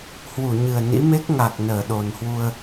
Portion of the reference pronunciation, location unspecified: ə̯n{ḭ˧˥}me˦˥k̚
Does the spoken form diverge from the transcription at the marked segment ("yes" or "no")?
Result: no